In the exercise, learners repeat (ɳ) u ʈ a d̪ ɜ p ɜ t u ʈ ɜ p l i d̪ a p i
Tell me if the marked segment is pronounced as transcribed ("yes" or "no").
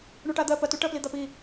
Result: yes